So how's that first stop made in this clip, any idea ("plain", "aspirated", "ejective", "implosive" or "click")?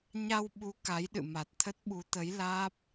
implosive